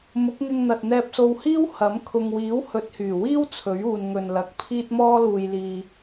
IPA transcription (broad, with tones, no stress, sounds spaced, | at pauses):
m ʊ˨˥ k̚ ŋ ɪ˧ ŋ n̪ ɐ˨ t̚ n̪ ɛː˧ p̚ s o˧ w h iː˥ w h ɐ˨˥ m kʰ ʊ˨ ŋ w iː˨˥ w h ɵ˨˥ t̚ h yː˨˩ w iː˥ w t͡sʰ ɵ˨˥ ɥ uː˨ n ŋ ɵ˨ n l ɐ˨˥ k̚ pʰ iː˥ t̚ m ɔː˥ l uː˧ j l iː˧